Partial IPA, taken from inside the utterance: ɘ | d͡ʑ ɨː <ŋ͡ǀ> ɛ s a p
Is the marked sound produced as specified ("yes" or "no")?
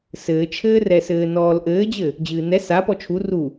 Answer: no